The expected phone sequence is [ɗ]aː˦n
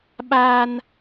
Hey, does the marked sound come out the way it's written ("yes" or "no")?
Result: no